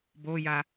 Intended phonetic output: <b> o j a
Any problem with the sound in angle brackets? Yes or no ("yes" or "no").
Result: no